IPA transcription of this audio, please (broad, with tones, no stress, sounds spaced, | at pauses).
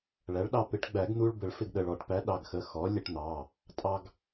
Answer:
ɭ æ˩˥ ɭ ɗ ɑ˧ p ɪ˩˥ ʈ ɡ͡b æ˨˩˦ ɡ n̪ u˧ ɭ b ə˨˩˦ ɭ f ɪ˧ ɡ ɗ ə˩˧˩ ɭ ɔ˨˩˦ ʈ p æ˩˥ ɗ ɑ˩˧˩ ɡ x ə˩˧˩ x ɔ˩˥ lʲ ə˧ ʈ n̪ ɑ˩˧˩ | tʼ ɑ˧ ɡ